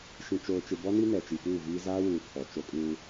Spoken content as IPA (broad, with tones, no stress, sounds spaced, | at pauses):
ʃ ĩ˨ t͡ʃ oː˨ t͡ʃ ɪ˨ b ɔ˦ n i˦ n ɛ˨ t͡ʃ i˨ p uː˦˨ v iː˦ z aː˦ w uː˨ kʰ ɔ˨ t͡ʃ o˦ kʼ uː˦